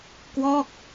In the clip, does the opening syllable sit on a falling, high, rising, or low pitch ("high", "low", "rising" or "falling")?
falling